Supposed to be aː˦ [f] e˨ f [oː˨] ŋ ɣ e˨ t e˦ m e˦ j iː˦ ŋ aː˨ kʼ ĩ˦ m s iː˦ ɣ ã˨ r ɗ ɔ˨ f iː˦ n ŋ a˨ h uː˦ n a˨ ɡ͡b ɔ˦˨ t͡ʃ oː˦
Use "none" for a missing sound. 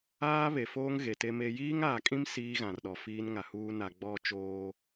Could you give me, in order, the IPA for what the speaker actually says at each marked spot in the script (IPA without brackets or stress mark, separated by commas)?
β, oː˦